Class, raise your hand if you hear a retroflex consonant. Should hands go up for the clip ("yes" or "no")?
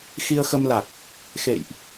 no